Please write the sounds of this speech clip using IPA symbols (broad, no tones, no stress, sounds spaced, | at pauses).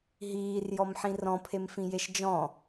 ɦ iː r j ɔ m ħ ĩ r ɔ̃ pʰ e m f ĩ j e ʃ d͡ʒ ɔ̃